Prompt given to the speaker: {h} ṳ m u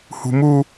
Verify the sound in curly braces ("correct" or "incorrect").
correct